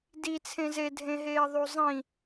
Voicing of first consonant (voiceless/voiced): voiced